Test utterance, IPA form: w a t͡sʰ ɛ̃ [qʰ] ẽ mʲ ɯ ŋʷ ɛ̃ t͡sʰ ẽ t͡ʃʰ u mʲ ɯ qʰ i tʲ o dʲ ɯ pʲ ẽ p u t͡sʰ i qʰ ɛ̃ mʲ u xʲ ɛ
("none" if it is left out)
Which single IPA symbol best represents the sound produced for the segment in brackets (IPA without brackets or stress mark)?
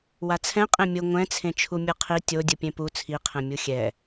qʼ